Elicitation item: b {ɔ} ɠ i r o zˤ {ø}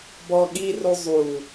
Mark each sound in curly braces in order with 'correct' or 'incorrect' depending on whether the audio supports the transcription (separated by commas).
correct, incorrect